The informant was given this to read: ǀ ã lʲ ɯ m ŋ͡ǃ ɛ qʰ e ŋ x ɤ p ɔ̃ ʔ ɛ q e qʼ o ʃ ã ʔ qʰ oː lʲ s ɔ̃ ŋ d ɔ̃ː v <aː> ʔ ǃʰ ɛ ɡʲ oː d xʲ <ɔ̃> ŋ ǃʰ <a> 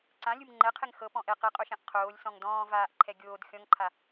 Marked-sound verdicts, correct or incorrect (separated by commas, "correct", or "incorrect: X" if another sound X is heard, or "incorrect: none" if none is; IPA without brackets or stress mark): correct, correct, correct